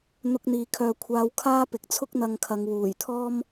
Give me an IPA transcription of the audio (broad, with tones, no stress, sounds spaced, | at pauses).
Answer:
n̪ ʊ˧ k̚ n̪ iː˨ kʰ œː˨ kʷʰ aː˧ w kʰ aː˥ p ɪ˨ k̚ t͡sʰ ʊ˥ k̚ n̪ ɐ˧ ŋ kʰ ɐ˨˧ ŋ w uː˨˩ j t̪ʰ ɔː˥ m